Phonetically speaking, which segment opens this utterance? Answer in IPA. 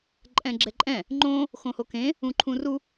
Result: ǃʼ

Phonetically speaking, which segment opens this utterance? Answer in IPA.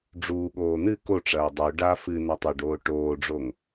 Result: ɖ͡ʐ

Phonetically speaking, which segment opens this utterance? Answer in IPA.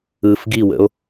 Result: ɯ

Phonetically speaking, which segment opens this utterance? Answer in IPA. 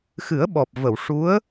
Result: x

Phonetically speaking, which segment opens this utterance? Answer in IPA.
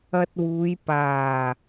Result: ɐ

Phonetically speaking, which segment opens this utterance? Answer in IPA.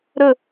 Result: ɾ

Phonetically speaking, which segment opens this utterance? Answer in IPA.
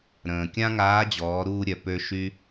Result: ɾ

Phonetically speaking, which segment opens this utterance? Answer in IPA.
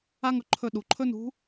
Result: a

